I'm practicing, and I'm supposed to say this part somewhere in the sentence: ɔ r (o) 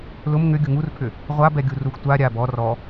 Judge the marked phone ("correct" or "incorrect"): incorrect